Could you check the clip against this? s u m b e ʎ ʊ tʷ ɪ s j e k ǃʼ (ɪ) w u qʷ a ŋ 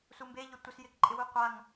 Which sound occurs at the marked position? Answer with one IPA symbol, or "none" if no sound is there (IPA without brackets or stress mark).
ɪ